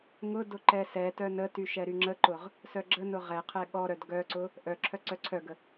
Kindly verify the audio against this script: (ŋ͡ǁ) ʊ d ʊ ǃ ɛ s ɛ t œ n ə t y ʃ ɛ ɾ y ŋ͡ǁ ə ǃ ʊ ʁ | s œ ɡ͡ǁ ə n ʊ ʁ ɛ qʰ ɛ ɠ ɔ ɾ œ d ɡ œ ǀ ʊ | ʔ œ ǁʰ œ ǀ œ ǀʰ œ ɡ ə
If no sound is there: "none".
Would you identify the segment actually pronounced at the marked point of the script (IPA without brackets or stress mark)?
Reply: ŋ